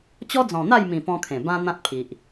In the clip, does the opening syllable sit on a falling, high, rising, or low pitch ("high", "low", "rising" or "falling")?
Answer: high